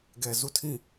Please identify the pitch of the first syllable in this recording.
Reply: low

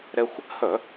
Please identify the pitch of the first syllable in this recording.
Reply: high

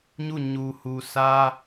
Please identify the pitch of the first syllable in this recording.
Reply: falling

